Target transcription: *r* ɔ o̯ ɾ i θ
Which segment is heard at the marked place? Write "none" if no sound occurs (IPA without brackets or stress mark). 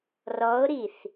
r